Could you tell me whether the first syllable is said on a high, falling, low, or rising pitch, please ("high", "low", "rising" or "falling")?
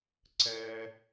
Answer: high